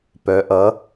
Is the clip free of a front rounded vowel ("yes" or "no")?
no